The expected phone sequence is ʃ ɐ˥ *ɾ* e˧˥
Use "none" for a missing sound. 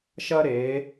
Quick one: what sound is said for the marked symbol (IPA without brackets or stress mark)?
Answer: ɾ